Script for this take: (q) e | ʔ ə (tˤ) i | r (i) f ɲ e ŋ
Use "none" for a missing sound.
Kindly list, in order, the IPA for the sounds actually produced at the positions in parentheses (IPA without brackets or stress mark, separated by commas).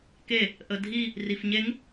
k, dʱ, i